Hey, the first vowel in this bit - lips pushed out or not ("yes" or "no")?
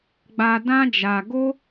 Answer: no